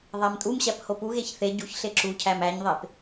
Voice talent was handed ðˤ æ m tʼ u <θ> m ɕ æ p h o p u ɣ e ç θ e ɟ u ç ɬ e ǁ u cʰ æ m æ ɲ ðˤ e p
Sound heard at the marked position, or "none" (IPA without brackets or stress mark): none